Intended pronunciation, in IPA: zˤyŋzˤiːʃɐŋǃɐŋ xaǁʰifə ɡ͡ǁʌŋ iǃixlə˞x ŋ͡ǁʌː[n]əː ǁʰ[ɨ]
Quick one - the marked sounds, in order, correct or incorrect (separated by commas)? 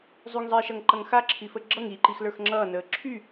correct, incorrect